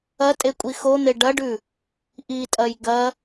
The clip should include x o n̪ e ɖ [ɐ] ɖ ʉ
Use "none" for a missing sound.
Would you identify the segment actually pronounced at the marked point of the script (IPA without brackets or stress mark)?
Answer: ɐ